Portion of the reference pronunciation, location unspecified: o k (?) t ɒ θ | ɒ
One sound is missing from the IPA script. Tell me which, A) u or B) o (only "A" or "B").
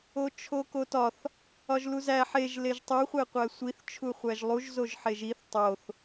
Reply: B